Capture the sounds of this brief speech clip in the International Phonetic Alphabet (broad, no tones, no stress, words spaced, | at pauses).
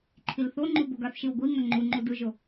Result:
ǃʰilθoŋ͡ǃu boɡaθʃiw ɡʷi ŋʌŋ͡ǃuŋ͡ǃu dɯʒo